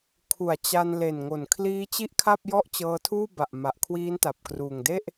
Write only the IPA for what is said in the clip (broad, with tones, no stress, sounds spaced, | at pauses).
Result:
kʰ u˨˩ a̯ t͡ɕ a˧ n l e˨˩ n ŋ o˨˩ n kʰ l iː˦˥ t͡ɕ i˥˩ ʔ kʰ a˥˩ p̚ j ɔ˥˩ ʔ t͡ɕ ɤː˧ tʰ uː˥˩ b a˨˩ ʔ m a˨˩ ʔ kʰ w iː˦˥ n t a˨˩ p̚ k r uː˨˩ ŋ d e˥˩ ʔ